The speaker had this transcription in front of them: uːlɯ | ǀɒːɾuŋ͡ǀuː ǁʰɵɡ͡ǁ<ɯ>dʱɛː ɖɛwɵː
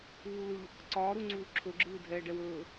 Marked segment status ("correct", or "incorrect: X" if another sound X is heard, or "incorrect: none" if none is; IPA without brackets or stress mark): incorrect: ɯː